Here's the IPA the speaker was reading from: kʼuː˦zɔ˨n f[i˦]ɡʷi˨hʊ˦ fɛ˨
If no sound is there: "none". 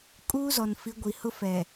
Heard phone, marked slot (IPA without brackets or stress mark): i˨˦